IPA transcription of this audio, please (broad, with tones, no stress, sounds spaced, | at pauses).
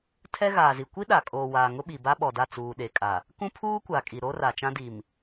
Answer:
tʰ ɛ˦ ɣ aː˨ z i˨ kʷ i˦ ɗ a˨ kʼ oː˨ w aː˨ ŋ ʊ˦ ɓ i˨ b a˦ ɓ ɔ˨ d a˦˨ t͡s uː˨ ɗ e˨ kʼ a˨ | k ũ˦ pʰ uː˦ kʷ a˨ kʼ i˨ ɾ oː˦ r a˨ t͡ʃ ã˦ d i˨ m